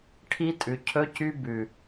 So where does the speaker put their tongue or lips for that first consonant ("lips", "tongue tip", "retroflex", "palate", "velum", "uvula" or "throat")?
retroflex